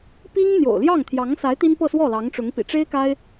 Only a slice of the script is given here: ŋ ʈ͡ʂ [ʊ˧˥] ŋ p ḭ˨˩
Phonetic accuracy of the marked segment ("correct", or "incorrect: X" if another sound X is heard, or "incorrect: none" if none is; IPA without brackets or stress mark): correct